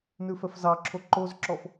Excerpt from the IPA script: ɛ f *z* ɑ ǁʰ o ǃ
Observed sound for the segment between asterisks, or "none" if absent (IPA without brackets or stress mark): z